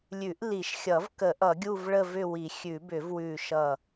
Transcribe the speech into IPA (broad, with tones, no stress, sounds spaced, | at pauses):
lʲ ʉ˨˩˦ ʔ l i˨˩˦ ʃ xʲ ʌ˨˩˦ v k ə˨˩˦ ʔ ʌ˨˩˦ ɡʲ u˦˨ v ɭ ə˦˨ v ʏ˦˨ w i˨˩˦ xʲ ʉ˨˩˦ b ʏ˨˩˦ v w ʉ˦˨ ʃ ʌ˦˨